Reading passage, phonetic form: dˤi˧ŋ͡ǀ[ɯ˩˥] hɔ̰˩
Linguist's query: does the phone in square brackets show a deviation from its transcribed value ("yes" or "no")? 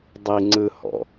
yes